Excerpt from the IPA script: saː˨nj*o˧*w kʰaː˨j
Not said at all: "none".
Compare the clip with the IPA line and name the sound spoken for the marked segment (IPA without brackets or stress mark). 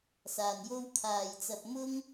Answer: o˥